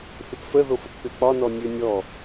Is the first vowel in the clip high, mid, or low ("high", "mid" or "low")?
high